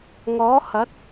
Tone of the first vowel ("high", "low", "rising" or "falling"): rising